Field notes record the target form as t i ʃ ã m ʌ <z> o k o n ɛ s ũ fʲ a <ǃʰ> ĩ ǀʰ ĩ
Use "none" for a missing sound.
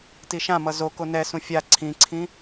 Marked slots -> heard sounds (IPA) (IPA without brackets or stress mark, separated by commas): z, ǀʰ